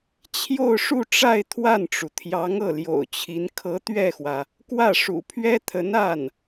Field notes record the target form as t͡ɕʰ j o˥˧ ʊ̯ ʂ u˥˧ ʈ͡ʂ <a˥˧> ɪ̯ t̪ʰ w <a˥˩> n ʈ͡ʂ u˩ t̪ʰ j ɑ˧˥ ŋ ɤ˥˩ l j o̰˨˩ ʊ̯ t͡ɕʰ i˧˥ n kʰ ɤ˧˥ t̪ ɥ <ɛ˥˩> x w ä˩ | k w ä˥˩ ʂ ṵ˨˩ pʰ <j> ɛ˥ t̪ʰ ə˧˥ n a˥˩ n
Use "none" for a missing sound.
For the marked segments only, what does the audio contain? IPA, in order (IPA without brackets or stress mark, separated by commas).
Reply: a˥˧, a˥˩, ɛ˥˩, ɥ